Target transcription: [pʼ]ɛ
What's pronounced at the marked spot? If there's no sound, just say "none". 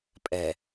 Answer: pʼ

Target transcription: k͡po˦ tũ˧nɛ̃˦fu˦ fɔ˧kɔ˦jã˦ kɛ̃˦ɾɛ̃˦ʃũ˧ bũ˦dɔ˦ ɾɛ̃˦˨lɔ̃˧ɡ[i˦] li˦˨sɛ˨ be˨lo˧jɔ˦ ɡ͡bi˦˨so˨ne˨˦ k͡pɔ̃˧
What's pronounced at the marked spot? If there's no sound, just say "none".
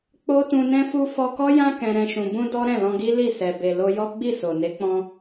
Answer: i˦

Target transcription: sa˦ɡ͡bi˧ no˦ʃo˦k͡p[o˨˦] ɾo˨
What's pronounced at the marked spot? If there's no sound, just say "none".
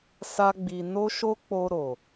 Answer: o˧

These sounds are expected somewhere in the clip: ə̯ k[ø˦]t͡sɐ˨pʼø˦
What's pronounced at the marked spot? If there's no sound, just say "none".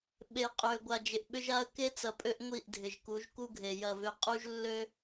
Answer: e˦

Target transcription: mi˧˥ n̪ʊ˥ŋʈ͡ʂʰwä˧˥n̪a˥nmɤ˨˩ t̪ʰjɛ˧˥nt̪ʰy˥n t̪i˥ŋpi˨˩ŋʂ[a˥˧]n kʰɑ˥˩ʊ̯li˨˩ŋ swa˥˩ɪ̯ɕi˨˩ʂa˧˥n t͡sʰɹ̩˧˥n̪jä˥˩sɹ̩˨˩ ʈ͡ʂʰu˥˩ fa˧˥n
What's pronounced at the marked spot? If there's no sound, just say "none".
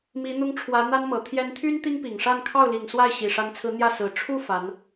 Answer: a˥˧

